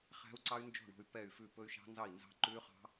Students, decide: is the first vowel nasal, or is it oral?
oral